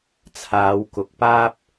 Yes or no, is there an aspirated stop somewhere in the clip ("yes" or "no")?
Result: yes